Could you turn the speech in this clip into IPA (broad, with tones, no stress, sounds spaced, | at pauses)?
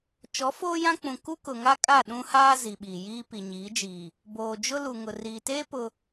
t͡ʃ ɔ˨˦ f oː˦ j ã˦ k͡p ũ˨ k u˦ k ʊ˨ ŋ a˦ kʼ a˦˨ ɗ ũ˦ h aː˦ z i˨ ɓ iː˨ j iː˦ p i˨ ɲ iː˨˦ d͡ʒ iː˨ | b oː˨ d͡ʒ ʊ˦ l u˨ ŋ ʊ˨ r iː˨ t eː˦ p ʊ˦